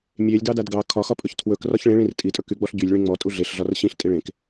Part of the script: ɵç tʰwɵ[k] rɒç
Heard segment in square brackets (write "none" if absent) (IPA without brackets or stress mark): k